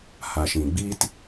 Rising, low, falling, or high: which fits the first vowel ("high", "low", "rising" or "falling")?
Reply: low